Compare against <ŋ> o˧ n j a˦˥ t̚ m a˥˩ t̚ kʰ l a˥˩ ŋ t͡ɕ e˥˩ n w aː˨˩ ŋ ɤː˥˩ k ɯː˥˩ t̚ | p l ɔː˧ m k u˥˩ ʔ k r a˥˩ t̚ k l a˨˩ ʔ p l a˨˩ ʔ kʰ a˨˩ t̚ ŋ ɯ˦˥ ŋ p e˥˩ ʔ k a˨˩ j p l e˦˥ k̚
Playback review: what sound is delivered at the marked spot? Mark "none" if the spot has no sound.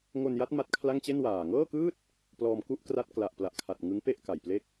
ŋ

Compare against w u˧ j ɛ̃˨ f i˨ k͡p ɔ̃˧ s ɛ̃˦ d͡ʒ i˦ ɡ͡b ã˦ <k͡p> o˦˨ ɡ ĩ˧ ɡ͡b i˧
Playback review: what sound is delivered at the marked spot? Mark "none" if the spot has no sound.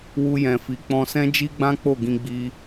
k͡p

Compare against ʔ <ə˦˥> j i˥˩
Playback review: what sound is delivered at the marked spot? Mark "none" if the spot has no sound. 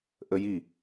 ə˦˥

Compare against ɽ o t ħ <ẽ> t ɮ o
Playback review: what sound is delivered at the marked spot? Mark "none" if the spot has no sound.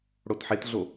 e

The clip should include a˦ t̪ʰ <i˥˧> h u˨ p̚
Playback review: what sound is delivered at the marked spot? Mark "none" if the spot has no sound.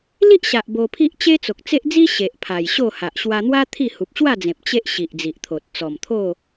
i˥˧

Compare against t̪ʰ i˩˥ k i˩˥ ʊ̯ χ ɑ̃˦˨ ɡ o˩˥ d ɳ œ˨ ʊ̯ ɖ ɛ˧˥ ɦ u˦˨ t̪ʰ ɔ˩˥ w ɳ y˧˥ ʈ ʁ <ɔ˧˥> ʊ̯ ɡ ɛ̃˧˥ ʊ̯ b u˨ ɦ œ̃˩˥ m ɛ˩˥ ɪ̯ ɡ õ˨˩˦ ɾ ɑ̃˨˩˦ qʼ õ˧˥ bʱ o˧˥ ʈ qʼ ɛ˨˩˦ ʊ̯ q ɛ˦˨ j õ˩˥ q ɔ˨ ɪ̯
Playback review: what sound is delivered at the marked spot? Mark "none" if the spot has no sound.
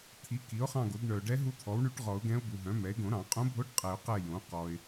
ɔ˨˩˦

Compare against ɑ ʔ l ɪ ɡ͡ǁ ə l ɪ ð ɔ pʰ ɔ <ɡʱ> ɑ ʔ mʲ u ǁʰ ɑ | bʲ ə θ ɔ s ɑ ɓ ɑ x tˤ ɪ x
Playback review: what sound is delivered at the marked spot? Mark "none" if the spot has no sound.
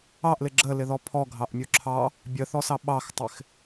ɡʱ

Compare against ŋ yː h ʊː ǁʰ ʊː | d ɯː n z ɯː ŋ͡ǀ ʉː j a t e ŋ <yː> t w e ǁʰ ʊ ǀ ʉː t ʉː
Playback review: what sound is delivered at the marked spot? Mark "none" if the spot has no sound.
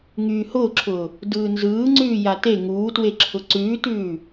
uː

